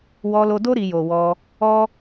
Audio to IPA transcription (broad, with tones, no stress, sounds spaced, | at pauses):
w ɔ˧ l o˧ d o˦ ɾ i˧ j o˨ w ɔ˧ | ɔ˦